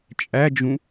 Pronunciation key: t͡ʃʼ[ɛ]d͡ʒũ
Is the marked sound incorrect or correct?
incorrect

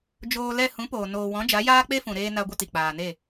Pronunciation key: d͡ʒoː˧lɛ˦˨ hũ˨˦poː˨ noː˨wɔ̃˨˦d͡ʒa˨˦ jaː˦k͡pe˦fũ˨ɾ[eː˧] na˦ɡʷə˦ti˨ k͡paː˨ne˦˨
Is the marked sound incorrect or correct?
correct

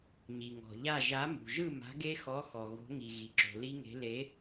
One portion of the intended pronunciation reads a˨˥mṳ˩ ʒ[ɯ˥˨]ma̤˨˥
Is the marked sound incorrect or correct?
correct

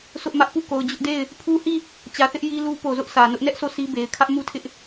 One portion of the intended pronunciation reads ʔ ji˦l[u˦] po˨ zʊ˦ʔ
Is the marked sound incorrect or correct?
correct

